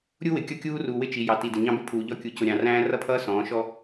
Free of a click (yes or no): yes